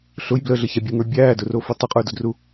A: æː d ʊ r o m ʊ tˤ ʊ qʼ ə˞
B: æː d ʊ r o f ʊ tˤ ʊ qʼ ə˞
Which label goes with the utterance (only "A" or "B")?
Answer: B